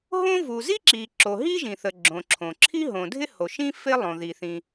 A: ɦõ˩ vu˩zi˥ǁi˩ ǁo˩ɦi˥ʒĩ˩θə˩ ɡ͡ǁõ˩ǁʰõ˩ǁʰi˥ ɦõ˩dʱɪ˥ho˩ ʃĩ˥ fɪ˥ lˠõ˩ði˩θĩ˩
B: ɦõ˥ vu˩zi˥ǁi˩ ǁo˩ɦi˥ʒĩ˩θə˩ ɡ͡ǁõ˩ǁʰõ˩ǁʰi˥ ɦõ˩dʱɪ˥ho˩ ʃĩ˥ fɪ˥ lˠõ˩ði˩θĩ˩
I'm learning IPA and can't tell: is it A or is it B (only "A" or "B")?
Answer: B